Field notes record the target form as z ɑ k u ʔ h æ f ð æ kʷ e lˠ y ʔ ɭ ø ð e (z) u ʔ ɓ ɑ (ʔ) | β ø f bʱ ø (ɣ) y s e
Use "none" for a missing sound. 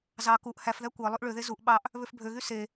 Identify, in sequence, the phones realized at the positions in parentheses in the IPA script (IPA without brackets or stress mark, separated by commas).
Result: z, ʔ, ɣ